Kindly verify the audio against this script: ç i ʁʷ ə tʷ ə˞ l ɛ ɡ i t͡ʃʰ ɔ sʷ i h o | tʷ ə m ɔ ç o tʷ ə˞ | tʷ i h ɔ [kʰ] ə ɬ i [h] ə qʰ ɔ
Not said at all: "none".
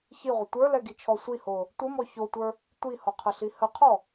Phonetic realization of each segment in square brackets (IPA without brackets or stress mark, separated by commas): qʰ, h